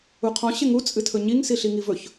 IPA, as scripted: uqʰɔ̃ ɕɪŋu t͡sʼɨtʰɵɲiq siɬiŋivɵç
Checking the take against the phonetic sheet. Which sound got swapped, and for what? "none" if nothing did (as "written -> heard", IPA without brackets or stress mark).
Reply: q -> ŋ